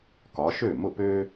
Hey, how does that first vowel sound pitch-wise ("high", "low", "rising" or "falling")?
rising